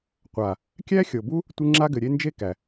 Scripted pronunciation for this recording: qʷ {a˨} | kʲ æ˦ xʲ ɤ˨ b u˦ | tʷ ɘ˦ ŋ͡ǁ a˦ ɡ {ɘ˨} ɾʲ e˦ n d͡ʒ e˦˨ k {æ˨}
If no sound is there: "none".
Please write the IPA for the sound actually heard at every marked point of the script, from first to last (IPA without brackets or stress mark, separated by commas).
a˨, ɘ˨, æ˨